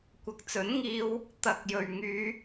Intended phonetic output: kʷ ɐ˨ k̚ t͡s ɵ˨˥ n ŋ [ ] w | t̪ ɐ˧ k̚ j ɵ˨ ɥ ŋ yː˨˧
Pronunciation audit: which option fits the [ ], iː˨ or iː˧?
iː˧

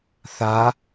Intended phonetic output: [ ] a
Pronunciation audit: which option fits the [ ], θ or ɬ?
θ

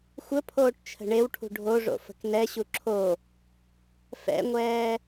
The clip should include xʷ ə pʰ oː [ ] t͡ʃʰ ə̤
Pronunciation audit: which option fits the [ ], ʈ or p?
ʈ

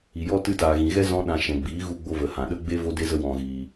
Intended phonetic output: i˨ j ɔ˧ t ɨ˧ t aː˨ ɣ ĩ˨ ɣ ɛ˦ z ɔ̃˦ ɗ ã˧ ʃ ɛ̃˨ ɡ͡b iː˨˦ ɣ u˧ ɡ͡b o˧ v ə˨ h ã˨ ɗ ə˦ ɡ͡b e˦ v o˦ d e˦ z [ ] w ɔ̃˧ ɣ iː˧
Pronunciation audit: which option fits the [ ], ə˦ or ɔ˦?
ə˦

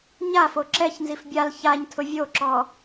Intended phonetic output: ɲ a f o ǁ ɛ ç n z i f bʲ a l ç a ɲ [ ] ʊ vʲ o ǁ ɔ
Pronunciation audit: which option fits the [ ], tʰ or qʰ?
tʰ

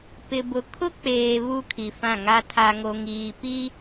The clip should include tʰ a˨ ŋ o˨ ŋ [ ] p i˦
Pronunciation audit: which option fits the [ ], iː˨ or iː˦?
iː˨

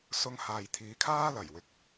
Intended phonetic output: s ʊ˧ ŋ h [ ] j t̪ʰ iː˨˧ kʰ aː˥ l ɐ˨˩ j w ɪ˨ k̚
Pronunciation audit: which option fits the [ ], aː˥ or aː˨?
aː˨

